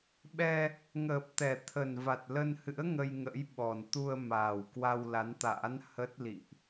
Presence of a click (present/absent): absent